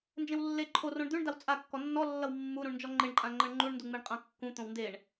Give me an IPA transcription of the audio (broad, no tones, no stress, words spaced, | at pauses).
nd͡ʒẽwlːe ǃʰo rõɳd̪ʉɳ dawt͡sʼakːɔ nːɔlːʌw mːuɾũɳnd͡ʒɔ ŋ͡ǃeɳǃʼãŋ͡ǃʌɳ ŋ͡ǃuɳnduŋ͡meɳ qʼãkːũt̪õw ndeɳ